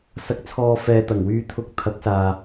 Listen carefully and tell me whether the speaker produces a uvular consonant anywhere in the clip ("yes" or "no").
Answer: no